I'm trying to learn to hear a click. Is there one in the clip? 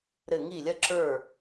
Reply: yes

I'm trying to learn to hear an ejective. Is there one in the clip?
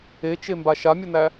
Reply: no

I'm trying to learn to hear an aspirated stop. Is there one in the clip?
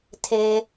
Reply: yes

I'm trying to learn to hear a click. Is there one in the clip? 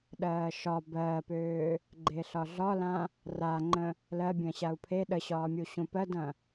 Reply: yes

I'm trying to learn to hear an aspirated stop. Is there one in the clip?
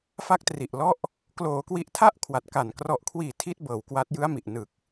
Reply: yes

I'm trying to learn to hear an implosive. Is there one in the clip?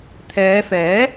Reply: no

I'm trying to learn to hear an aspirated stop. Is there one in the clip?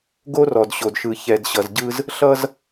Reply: no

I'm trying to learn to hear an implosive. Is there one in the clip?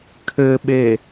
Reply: yes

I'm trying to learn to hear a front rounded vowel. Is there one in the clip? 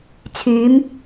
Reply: yes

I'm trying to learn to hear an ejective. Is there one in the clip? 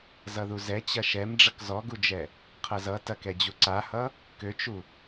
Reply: no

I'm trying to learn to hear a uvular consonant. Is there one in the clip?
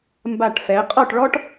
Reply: yes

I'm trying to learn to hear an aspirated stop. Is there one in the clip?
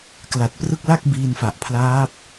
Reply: yes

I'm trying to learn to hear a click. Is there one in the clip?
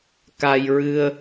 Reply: no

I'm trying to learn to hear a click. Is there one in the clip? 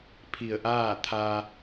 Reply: no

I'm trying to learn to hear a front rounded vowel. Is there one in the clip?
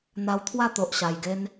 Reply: no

